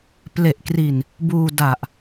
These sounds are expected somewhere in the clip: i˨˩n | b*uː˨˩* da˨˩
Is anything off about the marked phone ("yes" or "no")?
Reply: yes